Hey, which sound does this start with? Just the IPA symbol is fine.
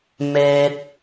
m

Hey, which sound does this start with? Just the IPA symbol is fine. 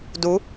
d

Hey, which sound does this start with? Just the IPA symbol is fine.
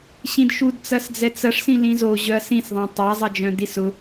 ɕ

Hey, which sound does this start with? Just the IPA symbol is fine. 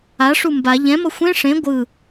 a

